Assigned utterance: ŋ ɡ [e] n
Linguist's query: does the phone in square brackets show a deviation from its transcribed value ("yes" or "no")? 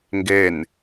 no